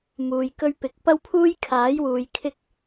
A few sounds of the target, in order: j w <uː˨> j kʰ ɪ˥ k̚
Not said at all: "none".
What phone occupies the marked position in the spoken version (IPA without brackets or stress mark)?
uː˨